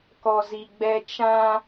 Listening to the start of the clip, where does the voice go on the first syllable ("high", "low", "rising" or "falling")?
low